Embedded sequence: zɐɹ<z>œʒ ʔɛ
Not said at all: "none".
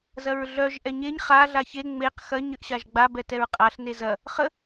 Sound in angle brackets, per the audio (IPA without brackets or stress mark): ɮ